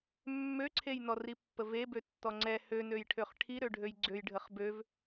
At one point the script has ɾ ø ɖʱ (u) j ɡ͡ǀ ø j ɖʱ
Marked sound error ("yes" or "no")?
yes